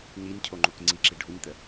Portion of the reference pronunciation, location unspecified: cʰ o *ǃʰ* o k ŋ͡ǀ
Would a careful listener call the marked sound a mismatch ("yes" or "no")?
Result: yes